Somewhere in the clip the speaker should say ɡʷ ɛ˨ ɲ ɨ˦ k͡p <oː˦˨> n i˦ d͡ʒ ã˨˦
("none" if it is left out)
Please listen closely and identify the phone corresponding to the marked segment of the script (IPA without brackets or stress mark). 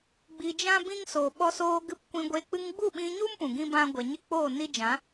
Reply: oː˦˨